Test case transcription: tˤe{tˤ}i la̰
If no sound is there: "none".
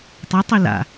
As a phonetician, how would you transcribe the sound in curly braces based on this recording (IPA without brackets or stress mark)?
tˤ